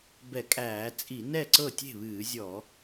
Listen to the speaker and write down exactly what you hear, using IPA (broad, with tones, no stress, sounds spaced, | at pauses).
b ɛ˧˩˧ kʼ æː˧˩˧ t͡sʼ i˧˩˧ n ɛ˥˩ ǀ ɤ˥˩ tʲ e̤˥˩ β ɨː˧˩˧ zʲ ɔ˧˩˧